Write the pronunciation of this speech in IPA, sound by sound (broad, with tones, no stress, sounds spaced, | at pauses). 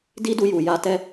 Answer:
d i˦ d u˧ j u˨ j a˧ t ɛ˦